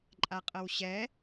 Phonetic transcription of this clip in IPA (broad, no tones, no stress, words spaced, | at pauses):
ǃʼaqʼɤwɕɛ